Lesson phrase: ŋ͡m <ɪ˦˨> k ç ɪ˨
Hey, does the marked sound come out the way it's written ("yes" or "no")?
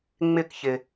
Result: yes